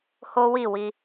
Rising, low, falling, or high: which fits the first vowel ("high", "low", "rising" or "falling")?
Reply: high